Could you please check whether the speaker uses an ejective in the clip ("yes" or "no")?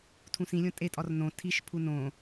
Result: yes